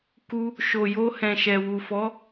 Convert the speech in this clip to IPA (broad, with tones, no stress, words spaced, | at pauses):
ku˧ | ʃo˨jo˧ hɛ̃˨ʃɛ˨wu˨fɔ˨˦